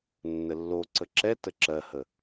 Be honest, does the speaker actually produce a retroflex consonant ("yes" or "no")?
no